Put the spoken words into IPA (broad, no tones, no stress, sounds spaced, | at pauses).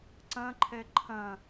ǀ ɐ̃ ǃʰ ɛ ǃʰ ɐ̃